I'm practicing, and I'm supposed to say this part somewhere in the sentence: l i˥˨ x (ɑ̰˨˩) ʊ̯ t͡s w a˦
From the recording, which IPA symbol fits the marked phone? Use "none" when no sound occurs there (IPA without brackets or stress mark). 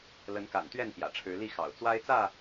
ɑ̰˨˩